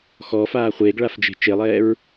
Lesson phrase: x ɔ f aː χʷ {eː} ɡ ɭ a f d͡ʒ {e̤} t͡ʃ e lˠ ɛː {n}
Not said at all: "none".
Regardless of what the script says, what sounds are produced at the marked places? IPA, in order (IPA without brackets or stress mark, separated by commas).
eː, e̤, ɹ